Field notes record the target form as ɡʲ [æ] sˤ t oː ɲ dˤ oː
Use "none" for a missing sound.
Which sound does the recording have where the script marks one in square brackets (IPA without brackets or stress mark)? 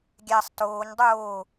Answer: æ